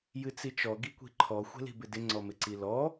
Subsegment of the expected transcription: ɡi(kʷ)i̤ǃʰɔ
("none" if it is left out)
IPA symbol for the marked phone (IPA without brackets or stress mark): kʷ